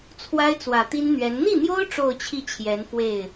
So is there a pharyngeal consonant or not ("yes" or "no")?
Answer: no